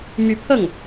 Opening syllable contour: rising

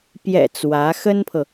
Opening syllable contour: low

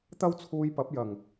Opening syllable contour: high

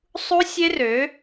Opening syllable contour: high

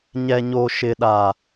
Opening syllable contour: low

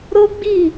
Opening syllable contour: high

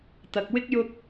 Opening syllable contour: low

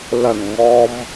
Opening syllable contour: low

